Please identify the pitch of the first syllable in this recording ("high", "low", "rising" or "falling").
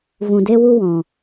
low